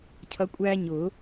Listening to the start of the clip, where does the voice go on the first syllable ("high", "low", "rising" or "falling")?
rising